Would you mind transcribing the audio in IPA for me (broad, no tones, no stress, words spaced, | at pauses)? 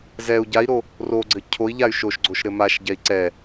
zɛu̯ ɟai̯ɾo | roɡ͡ǀɘ cʰoi̯ ʎay̯ʃoʃɡ͡ǀoʃ ɾɘmaʃɟɛi̯ ǀɛ